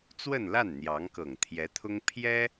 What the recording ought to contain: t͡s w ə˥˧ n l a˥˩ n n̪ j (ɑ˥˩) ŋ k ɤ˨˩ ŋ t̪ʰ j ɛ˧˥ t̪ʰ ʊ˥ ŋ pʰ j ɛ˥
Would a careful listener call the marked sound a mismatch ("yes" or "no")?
yes